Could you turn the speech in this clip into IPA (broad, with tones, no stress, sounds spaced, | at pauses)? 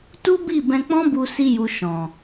t u˦ b i˦˨ b ɛ̃˧ k͡p ɔ̃˦ b u˧ s i˧ j u˨ ʃ ɔ̃˨